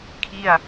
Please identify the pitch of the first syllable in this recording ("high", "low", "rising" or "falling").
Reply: falling